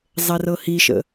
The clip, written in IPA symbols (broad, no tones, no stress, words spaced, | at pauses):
zˤɛrɤhiʃə̰